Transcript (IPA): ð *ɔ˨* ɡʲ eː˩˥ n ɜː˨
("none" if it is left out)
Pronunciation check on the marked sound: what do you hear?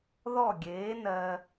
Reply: ɔ˥˩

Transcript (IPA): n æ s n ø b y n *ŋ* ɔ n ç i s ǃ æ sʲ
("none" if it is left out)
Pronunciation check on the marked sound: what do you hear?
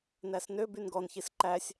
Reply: ɡ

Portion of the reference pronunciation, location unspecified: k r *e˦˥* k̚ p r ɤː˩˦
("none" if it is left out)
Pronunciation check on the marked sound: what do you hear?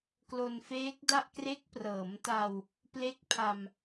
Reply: e˦˥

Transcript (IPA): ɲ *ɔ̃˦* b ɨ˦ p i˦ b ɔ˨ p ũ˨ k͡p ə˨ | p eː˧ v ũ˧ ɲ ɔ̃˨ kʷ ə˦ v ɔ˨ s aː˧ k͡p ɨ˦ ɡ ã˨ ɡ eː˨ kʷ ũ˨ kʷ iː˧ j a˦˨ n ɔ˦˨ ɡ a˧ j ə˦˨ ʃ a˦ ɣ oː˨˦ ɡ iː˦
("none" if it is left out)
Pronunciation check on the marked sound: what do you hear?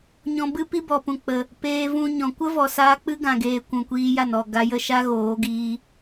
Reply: ɔ̃˧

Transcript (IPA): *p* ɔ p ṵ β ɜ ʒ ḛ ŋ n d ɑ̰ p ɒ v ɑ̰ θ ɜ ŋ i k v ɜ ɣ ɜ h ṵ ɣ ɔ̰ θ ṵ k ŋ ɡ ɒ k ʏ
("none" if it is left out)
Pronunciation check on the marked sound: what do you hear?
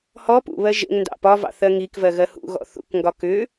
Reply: h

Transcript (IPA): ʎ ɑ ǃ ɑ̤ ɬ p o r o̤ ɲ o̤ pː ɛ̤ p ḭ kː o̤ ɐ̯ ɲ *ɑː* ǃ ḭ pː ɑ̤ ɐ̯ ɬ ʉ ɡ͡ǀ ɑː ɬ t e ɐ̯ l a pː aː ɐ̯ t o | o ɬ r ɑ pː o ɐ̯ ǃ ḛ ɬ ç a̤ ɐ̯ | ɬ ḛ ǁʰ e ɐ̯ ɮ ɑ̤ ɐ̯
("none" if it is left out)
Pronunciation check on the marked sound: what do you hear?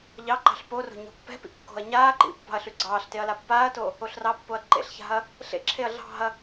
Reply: aː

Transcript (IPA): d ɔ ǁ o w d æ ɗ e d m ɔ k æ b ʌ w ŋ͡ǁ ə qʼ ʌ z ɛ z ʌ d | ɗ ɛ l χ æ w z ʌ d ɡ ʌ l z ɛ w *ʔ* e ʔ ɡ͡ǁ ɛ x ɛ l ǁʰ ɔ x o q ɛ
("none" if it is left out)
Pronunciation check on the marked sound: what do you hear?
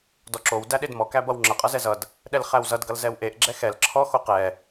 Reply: ʔ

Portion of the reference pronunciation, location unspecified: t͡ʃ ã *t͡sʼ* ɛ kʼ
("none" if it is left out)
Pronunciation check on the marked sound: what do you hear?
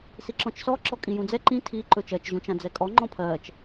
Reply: d͡z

